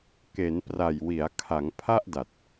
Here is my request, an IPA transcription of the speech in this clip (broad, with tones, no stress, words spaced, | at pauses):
ke˩˦npra˨˩jwi˩˦a̯kʰa˩˦ŋ pʰa˥˩ʔda˨˩t̚